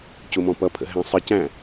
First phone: c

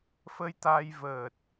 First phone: f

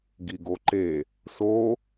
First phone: ɡ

